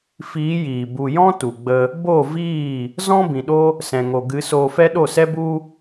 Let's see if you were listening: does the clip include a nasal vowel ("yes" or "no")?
yes